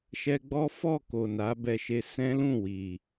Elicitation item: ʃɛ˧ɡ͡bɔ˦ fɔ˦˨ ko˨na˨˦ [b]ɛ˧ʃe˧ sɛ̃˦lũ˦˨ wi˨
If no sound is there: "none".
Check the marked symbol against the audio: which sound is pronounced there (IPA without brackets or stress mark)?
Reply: b